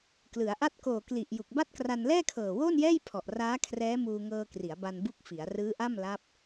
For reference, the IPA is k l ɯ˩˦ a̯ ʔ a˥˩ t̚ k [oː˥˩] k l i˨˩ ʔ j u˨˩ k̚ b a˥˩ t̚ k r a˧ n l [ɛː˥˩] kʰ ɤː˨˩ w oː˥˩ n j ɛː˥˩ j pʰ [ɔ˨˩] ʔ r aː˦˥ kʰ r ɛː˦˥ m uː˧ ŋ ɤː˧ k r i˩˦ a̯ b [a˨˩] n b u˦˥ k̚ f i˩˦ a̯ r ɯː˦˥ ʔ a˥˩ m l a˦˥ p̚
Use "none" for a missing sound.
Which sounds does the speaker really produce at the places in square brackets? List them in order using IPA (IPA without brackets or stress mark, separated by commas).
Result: oː˨˩, ɛː˥˩, ɔ˨˩, a˧